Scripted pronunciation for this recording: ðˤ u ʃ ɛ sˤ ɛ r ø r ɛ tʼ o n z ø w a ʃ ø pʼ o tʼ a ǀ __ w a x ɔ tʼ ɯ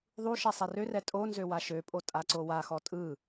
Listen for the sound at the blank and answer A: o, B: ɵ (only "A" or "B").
A